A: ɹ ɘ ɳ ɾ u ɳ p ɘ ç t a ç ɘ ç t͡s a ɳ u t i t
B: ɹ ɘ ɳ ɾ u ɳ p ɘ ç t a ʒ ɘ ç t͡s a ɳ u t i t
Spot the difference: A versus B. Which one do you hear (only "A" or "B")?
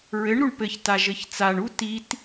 B